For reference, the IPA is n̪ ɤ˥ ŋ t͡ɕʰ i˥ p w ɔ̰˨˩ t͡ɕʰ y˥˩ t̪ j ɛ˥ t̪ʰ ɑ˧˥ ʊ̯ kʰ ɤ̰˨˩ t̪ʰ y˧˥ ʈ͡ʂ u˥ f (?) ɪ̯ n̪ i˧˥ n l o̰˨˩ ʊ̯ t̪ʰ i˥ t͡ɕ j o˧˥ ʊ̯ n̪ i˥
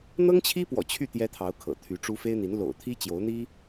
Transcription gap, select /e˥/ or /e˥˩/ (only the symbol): e˥